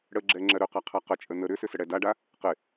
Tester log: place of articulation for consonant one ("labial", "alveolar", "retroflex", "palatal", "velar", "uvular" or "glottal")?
retroflex